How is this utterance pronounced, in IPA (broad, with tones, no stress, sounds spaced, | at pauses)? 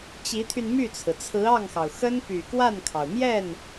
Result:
t͡ɕ i˧˥ t̪ʰ y˧ n m y˥˩ t͡sʰ ɹ̩˩ t͡sʰ ɹ̩˧˥ ɑ˥˩ ŋ x ɑ˩ ʊ̯ x ə˥ n p y˨˩ k w a˥˩ n kʰ ɑ˩ ʊ̯ m j ɛ˥˩ n